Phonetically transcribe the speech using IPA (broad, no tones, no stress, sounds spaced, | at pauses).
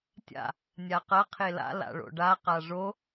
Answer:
tʲ a̰ | nʲ a q ɐ qʰ e l a̰ l a̰ ɭ o̰ ɖ a q a ʐ o